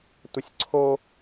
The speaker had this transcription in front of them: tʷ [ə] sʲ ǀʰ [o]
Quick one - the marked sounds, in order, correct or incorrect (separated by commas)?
correct, correct